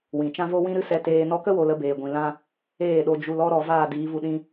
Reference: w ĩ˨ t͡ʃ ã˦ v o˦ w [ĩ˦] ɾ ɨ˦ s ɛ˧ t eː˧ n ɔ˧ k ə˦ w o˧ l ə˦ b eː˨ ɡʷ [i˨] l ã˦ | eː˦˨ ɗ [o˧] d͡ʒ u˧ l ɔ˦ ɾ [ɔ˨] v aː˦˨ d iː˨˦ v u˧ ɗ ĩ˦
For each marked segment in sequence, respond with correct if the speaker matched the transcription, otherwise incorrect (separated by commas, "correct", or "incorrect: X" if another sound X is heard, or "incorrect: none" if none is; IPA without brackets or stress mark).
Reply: correct, incorrect: ĩ˨, correct, correct